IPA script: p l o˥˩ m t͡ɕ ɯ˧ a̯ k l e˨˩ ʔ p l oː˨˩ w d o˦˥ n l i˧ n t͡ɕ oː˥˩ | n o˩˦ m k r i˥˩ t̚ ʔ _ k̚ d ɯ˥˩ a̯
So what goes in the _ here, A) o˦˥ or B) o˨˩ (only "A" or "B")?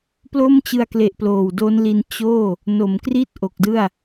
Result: B